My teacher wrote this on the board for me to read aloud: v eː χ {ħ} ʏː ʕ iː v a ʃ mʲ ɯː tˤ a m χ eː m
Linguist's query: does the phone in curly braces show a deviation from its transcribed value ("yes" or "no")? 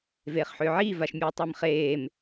no